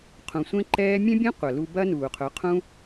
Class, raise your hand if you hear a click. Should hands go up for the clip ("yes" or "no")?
yes